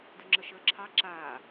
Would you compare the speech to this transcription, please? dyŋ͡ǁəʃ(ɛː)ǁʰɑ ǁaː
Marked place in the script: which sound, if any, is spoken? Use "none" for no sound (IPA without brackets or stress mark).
əː